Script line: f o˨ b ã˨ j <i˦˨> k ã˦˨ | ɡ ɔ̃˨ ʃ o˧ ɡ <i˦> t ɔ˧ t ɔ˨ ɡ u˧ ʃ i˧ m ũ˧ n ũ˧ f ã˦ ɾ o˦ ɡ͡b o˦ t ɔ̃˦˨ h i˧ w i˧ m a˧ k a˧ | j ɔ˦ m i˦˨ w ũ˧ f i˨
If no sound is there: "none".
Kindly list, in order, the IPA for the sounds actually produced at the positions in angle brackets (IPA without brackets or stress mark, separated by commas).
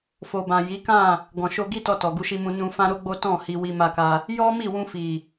i˨˦, i˦